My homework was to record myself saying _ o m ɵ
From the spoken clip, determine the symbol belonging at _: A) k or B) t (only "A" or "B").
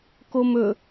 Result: A